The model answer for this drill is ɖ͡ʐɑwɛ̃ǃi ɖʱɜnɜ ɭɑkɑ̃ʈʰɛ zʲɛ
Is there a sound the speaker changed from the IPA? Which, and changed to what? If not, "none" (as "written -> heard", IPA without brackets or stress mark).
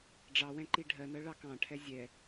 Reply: none